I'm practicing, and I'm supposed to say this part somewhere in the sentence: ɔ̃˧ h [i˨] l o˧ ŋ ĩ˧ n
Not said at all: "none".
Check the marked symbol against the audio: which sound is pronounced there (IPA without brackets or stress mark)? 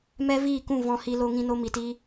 i˧